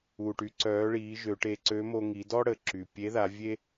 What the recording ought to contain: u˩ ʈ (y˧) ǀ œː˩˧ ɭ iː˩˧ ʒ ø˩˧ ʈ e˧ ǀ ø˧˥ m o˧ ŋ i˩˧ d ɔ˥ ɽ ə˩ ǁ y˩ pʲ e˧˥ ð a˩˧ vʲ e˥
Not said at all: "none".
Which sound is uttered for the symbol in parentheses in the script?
y˩˧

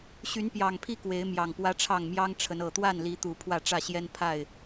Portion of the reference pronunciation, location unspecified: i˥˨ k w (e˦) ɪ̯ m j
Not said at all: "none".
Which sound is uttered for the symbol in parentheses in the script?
e˨˦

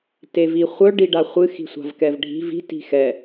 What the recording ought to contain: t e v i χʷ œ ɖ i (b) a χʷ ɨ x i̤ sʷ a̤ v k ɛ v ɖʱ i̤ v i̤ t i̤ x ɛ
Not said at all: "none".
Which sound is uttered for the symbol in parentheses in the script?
ɖ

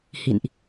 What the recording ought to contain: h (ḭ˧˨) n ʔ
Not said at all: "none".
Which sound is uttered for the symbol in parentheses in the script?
ḭ˧˨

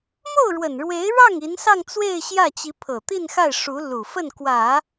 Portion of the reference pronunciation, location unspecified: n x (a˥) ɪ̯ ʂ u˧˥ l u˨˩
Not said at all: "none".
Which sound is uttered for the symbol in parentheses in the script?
a˥˩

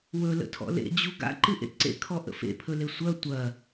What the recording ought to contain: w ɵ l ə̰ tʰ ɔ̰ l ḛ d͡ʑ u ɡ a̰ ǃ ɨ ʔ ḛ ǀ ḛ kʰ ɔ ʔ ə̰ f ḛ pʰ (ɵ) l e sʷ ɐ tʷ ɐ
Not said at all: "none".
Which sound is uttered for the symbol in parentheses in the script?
ɵ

